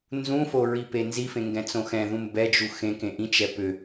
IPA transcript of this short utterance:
nzũfo ɹipenzifẽ ŋɡɛ̃t͡sõxɛ̃ðũ mbɛd͡ʒu xẽ kẽʔĩt͡ʃɛ pʏ

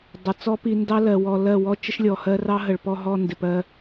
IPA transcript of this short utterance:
dˤə˨ t͡sɔ˦pi˧ndɑ˦ lɜ˨ wɔ˨ lɜ˦˨wɔ˦ t͡ʃə˦ʃlʲɔ˨hɜ˦rɑ˦ ɦə˨ɭpɔ˧ɦɔ˧ ndɪ˨pɜ˧

